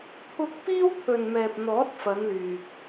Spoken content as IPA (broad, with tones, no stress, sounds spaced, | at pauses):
t̪ʰ ʊ˧ k̚ p iː˥ w t̪ʰ ɵ˨ n m ɛː˨ p̚ n̪ ɔː˨˥ t̚ f ɐ˨˧ n l yː˨ k̚